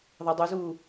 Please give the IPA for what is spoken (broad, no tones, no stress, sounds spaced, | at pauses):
ðˤ ɛ dˤ u z uː